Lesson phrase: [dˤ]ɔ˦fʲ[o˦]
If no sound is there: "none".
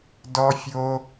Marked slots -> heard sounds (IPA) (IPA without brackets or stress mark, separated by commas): d, o˦